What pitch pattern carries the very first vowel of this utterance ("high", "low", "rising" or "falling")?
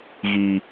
low